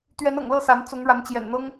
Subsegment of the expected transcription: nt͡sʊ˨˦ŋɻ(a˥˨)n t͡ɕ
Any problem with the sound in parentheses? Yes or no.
yes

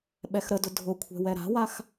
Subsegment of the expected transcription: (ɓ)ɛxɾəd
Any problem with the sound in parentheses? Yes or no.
no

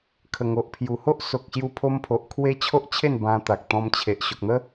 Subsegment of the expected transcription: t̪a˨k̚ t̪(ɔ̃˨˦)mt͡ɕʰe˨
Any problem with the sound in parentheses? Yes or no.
yes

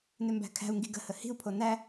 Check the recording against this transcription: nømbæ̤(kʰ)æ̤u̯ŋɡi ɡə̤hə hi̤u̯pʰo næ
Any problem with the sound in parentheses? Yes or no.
no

